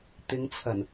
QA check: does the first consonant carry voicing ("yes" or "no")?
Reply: no